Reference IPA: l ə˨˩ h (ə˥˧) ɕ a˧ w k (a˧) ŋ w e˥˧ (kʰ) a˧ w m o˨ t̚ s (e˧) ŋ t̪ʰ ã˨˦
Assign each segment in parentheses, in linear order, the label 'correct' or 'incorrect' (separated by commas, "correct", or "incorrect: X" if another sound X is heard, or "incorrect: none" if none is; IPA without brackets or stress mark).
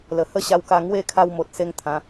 correct, correct, correct, correct